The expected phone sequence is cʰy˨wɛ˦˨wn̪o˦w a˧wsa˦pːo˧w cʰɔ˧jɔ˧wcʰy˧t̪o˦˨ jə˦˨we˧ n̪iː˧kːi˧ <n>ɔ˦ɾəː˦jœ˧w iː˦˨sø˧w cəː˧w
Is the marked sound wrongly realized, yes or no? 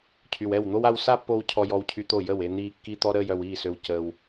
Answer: yes